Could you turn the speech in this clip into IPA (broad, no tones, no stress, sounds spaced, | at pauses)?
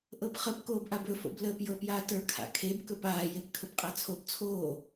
ʔ ɤ p χ ə p k oː b ʔ a b ɵ f o̰ b l əː p j ɤ p j aː t ə˞ kʰ a̰ kʰ e b k ɵ p aː j e p kʰ ɵ b qʼ a t͡sʰ o b t͡sʰ oː